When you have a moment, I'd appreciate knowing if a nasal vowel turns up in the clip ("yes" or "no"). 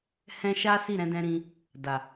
yes